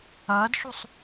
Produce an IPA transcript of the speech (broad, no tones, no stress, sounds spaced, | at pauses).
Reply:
ɐː d ʃ u sˤ